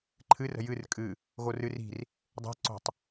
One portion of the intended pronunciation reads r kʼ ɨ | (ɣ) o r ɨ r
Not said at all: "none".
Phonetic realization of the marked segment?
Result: ɣ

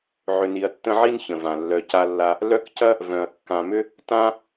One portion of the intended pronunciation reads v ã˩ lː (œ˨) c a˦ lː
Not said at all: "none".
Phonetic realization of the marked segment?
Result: œ˨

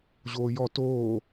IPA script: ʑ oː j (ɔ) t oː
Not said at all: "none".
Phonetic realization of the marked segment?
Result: ɔ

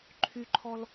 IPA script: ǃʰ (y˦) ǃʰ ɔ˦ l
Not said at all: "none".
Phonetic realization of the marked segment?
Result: y˦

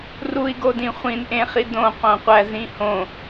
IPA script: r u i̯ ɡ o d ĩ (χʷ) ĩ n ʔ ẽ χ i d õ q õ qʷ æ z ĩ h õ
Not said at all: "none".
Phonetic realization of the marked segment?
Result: χʷ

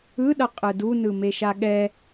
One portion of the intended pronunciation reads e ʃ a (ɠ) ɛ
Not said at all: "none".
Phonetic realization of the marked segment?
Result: ɠ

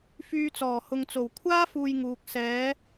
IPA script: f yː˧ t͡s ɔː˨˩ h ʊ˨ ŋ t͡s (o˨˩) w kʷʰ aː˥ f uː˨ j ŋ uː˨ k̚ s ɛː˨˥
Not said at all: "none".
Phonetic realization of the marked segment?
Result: o˨˩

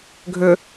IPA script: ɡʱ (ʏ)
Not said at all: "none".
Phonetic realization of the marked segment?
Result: ʏ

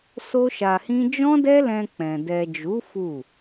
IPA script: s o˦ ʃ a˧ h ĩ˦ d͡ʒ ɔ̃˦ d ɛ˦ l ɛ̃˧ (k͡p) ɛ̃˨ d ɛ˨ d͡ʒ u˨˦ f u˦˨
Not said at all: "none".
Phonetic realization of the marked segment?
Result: k͡p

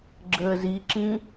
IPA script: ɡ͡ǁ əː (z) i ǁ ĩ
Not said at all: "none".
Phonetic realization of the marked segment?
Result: z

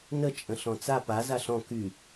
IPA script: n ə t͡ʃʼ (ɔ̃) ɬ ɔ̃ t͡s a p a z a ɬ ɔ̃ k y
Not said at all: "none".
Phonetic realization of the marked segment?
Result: ə̃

